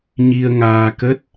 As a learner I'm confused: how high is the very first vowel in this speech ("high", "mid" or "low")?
high